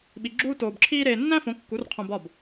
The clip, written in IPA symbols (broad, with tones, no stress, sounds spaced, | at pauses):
ɓ i˧ ɡ͡ǁ uː˥ t oː˧ b ǁʰ iː˥ ɾ eː˧ nː æ̃˥ f õ˨˥ kː u˨˥ r qʰ õ˧ b ɒ˥˩ b